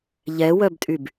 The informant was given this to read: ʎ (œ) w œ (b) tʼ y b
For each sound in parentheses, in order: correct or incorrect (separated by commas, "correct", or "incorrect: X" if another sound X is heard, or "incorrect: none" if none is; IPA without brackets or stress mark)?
incorrect: ɛ, correct